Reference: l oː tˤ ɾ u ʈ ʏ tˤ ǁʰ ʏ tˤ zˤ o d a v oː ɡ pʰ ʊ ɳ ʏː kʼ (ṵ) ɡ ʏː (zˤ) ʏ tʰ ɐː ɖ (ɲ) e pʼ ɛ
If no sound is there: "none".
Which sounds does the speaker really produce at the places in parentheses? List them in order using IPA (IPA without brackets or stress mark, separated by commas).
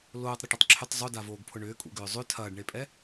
ṵ, zˤ, ɳ